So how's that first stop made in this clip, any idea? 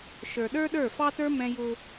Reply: implosive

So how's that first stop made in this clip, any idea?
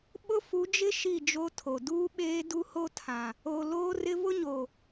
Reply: implosive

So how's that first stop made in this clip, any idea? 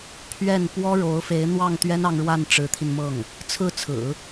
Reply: aspirated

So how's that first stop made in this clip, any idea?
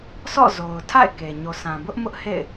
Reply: aspirated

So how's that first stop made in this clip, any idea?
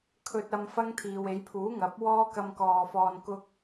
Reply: aspirated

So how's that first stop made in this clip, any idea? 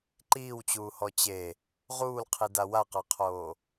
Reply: click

